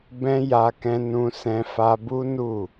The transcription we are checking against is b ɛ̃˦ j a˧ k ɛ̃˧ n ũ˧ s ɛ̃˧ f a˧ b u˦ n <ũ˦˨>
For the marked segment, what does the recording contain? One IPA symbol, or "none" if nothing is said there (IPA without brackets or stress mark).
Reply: u˦˨